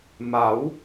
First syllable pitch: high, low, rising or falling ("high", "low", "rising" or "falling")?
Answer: rising